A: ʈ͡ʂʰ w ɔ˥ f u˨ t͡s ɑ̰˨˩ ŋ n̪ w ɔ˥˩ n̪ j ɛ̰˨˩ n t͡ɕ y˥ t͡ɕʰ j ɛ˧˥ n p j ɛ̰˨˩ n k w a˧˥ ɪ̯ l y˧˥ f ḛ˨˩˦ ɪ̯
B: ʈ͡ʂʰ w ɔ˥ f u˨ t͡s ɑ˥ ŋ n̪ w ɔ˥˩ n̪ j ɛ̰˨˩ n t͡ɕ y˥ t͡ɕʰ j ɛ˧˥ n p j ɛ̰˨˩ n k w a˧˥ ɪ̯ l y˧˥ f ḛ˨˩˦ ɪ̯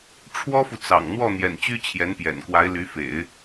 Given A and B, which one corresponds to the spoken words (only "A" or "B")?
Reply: A